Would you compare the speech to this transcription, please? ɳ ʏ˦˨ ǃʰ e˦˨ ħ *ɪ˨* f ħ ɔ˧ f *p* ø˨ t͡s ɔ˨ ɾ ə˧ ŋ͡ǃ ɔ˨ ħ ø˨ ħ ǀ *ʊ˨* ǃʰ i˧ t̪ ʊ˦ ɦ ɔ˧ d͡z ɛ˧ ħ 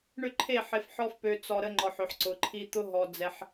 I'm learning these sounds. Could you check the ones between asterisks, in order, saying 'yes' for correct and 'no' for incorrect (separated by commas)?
yes, yes, yes